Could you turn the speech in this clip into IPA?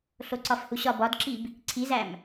ɬ o ǀ ɒ f h u ɕ ɒ b ɒ d ǁ i b | ǀʰ i z æ m

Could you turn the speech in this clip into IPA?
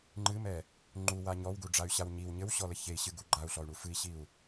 ŋ͡ǃ ɨ m ɛ | ŋ͡ǃ u w a ɲ ɔ w ɡ u ɖ͡ʐ a y̯ ɕ a w ɲ i w ɲ ɘ w ɕ ɔ l ɘ ç e i̯ ɕ ɨ ɡ u ɡ͡ǃ a u̯ ɬ ɔ y̯ ɳ u f ɨ i̯ ɕ i u̯

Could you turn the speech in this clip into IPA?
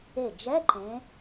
e˧˩ d͡ʒ ɛ˧˥˧ ǃ ẽ˨˦

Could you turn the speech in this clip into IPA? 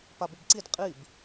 p a b ɪ b ǀ i d qʼ i b

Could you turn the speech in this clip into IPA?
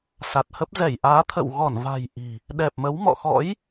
s a˨˩ t̚ h ə˦˥ p̚ z ɛ˧˩ j ʔ aː˨˦ t̪ʰ ə̰˧˨ w ɣ ɔ˧˩ n v a̤˨˩ j ʔ i̤˨˩ | ɗ ɛ˨˩ p̚ m ə˨˦ w m ɔ̰˧˨ x ɔ̰˧˥ j

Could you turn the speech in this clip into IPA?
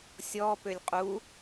sʲ ɔ p ø lʲ qʼ u

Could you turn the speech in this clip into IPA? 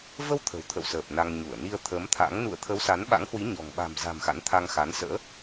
v ə˧ w t̪ʰ ə̤˨˩ w t̪ʰ ə̰˧˨ w s əː˨˩ p̚ n a˧ ŋ ɲ u˧˩ ə̯ n i˧ ə̯ t̪ʰ əː˨˦ m t̪ʰ a̰˧˥ ŋ n ṵ˧˨ ə̯ t̪ʰ ə˨˦ w s a˨˦ n ɓ a̰˧˥ ŋ h w i˨˦ ɲ ɔ̤˨˩ ŋ ɓ a̤˨˩ m z a̤˨˩ m x a̰˧˥ n t̪ʰ a˧ ŋ x a˨˦ n s ə̰ː˧˥

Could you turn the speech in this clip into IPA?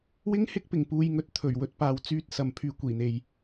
w ɪ˥ ŋ h ɪ˥ k̚ p ɪ˨˩ ŋ p uː˧ j ŋ ɵ˧ t̚ t̪ʰ ɵ˨˩ ɥ w ɵ˨˥ t̚ p aː˧ w t͡s yː˥ t̚ s ɐ˨ m pʰ yː˧ kʷ iː˨˩ n̪ e˨ j

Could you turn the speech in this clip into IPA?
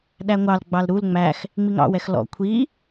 ɗ æ ŋʷ ɑ l ɡ͡b ɑ l ɾ u l ŋ͡m æ x | ŋ͡m i ŋ ɑ̰ w ɛ x l ɔ̰ kʷʰ i

